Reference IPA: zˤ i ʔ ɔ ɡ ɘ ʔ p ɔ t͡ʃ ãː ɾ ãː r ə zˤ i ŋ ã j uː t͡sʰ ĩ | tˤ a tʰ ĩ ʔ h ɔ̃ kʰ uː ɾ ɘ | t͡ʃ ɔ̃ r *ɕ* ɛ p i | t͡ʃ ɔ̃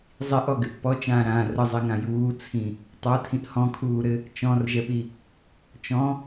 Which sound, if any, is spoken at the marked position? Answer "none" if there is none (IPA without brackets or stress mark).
ʒ